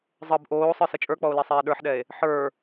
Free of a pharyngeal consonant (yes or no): no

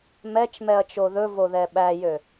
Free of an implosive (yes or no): no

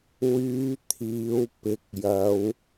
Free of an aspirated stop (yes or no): no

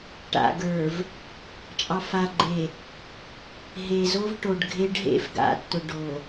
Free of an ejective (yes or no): no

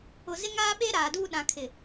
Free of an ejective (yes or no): yes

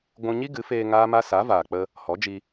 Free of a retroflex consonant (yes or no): yes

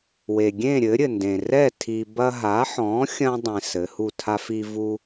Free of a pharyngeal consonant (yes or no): no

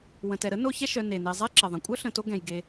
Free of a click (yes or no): no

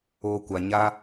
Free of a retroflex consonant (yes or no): yes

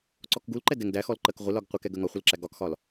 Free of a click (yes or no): no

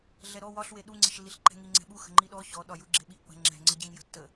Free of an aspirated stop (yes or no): yes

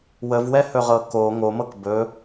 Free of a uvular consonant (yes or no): no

